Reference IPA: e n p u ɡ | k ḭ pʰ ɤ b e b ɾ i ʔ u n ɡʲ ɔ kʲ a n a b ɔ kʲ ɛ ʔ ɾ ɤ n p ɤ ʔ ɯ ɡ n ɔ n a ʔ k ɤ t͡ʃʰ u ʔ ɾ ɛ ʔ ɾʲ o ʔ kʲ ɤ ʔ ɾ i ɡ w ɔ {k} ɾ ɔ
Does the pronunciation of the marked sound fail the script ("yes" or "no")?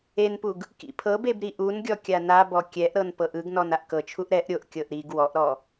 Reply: yes